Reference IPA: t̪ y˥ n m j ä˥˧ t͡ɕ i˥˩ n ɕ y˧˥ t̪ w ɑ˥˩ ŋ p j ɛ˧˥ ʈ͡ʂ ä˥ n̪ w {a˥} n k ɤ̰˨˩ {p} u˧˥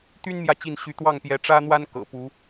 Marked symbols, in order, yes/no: yes, yes

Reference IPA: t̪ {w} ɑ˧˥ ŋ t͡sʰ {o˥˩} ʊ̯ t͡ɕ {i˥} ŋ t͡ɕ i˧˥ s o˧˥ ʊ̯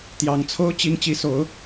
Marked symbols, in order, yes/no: no, no, yes

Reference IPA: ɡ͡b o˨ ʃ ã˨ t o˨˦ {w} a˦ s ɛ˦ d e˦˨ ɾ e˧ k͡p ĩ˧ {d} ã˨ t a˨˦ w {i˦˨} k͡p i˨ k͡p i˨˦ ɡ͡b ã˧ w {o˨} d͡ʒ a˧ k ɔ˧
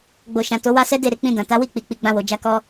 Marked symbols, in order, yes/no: yes, yes, yes, yes

